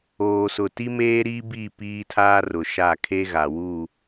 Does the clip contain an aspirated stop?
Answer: yes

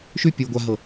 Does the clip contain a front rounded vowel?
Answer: no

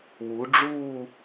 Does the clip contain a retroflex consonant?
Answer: yes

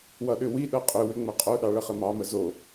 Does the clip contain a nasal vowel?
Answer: no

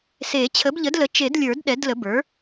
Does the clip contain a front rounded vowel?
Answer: no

